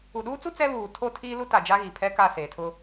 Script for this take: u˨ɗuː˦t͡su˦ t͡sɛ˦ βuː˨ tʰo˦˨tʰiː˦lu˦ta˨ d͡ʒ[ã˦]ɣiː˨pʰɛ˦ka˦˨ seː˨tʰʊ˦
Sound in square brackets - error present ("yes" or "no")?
yes